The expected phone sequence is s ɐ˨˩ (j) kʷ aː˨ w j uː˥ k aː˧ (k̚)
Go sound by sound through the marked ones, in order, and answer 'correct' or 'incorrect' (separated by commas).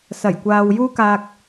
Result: correct, correct